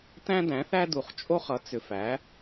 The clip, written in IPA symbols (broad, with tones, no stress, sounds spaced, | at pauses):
t æ̃˦ d æ̃˩˥ θ æ˦ d u˨ χ t͡ʃʼ o˦ χ ʌ˩˥ t͡s ʏ˨ f æ˩˥